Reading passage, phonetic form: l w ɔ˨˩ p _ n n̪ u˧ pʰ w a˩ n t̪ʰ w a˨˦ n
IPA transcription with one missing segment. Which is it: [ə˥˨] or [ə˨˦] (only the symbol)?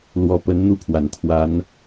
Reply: ə˨˦